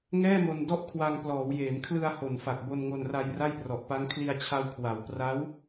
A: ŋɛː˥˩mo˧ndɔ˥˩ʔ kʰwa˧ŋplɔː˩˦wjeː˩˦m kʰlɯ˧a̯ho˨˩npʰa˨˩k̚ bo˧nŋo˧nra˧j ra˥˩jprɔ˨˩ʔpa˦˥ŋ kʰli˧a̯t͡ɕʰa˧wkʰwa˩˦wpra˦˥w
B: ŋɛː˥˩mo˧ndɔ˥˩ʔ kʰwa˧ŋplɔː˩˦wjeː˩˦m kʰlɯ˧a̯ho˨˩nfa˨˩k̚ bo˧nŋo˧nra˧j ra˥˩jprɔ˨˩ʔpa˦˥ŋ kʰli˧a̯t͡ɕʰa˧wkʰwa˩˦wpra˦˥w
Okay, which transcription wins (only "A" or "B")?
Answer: B